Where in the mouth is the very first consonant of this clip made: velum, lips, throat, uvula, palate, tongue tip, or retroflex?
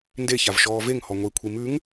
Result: tongue tip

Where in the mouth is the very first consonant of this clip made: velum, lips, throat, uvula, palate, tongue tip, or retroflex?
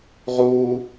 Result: uvula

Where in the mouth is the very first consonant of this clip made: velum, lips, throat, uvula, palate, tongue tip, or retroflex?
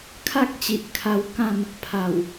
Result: velum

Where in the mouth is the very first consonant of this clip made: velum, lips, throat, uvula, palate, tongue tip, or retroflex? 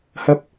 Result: throat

